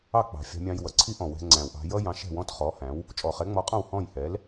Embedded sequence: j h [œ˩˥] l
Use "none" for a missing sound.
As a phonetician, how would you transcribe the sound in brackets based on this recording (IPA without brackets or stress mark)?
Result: ɛ˩˥